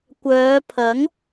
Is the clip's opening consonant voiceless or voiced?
voiceless